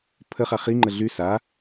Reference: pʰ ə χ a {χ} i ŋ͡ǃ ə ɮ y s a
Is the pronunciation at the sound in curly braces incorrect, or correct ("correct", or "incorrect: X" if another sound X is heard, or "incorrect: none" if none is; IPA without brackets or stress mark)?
correct